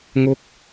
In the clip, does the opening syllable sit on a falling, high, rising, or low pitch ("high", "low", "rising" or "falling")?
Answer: high